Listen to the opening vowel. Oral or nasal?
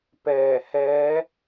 oral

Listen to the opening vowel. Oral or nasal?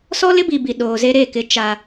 oral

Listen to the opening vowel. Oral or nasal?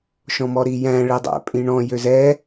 nasal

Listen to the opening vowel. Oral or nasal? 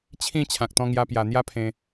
nasal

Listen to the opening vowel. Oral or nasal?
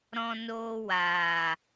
nasal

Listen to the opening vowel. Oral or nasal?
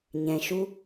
nasal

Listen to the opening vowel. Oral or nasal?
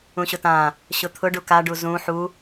nasal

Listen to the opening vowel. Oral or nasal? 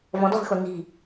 nasal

